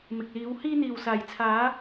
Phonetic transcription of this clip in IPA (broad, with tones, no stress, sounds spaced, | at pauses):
m ɪ˨ k̚ l iː˨˧ w h iː˧ n̪ iː˨ w s aː˨ j t͡sʰ aː˨˧